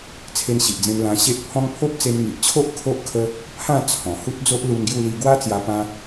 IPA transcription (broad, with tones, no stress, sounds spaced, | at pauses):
t͡sʰ e˧ n ɕ i˨ ʔ d͡z ẽ˧ m l ã˧ ɕ e˦ ʔ pʰ ɔ̃˦ ŋ pʰ o˦ p̚ t͡s e˧ n ŋ i˨ ʔ t͡ɕʰ o˦ ʔ kʰ o˦ ʔ kʰ ə˦ | pʰ ã˥˧ t͡sʰ ɔ̃˨˩ h u˦ t̚ d͡z o˦ ʔ l u˧ n ɡ j u˥˧ l i˧ ɡ w a˦ t͡s j a˧ p ã˦